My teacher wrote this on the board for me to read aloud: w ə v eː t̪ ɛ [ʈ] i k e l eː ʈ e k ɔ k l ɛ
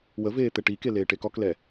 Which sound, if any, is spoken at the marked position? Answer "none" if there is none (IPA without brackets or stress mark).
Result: ʈ